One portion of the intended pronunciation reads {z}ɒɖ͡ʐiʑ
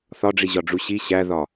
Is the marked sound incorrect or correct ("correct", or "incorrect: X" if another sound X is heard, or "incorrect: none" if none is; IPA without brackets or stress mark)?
incorrect: θ